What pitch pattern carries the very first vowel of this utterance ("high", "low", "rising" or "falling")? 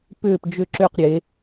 falling